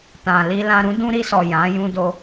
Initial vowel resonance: nasal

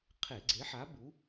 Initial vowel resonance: oral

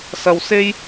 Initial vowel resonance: oral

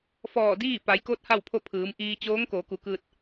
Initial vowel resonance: oral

